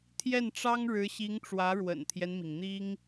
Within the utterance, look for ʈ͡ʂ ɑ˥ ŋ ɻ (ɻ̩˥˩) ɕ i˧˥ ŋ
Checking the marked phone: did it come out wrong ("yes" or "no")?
yes